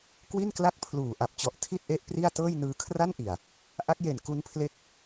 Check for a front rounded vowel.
absent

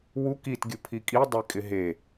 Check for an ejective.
present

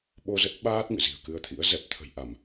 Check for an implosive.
present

